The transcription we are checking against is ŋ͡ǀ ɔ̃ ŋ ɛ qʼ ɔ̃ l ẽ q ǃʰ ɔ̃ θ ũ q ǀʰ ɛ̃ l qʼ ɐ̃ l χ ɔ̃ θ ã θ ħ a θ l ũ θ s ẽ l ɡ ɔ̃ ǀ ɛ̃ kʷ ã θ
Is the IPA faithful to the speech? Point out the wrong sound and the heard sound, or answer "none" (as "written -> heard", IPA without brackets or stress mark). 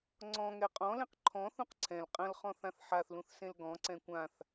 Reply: none